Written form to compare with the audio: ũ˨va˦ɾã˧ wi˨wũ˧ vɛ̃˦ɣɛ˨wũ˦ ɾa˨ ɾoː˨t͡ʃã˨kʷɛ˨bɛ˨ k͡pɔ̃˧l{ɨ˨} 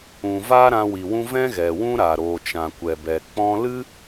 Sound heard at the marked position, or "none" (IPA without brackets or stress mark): ɨ˦